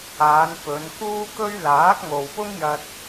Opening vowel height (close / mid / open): open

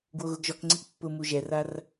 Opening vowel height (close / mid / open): mid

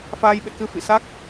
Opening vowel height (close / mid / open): open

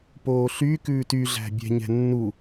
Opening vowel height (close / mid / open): mid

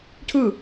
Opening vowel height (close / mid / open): close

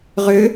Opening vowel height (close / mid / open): close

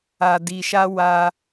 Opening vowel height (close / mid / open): open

